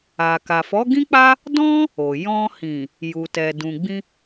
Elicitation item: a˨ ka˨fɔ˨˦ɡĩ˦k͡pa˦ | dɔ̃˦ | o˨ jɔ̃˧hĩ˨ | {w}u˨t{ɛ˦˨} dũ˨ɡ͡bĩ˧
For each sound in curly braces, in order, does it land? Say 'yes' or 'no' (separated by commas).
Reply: no, no